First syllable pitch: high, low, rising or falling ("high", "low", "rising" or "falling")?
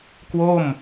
falling